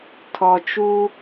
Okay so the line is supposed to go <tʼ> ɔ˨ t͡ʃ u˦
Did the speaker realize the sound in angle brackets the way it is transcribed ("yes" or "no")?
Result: no